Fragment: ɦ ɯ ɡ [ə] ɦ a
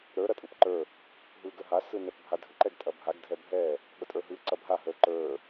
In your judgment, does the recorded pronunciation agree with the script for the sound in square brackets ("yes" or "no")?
yes